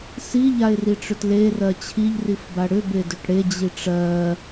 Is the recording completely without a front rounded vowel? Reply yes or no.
no